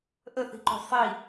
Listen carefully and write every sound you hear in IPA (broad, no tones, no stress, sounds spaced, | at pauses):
ʔ ə θ i̤ ǃ o̤ sˤ i